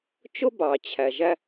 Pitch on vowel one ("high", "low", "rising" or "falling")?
high